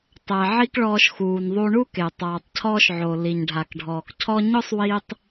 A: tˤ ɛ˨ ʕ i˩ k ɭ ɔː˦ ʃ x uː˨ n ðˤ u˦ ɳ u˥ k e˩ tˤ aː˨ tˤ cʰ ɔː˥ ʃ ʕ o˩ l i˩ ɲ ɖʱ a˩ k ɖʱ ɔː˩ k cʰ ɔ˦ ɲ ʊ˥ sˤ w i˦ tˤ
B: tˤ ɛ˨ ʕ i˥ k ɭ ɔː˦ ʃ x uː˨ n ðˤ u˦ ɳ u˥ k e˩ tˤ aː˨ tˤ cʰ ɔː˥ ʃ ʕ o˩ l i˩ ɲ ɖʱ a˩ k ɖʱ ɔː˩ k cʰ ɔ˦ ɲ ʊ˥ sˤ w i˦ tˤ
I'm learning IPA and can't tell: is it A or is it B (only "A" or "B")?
B